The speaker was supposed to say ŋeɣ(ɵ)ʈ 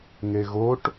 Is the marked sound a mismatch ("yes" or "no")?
yes